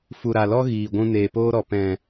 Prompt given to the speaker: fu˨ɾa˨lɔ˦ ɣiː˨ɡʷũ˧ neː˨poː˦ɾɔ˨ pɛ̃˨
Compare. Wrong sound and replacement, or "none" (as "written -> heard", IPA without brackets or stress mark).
none